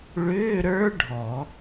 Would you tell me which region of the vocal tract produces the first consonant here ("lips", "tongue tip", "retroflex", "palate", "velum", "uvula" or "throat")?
retroflex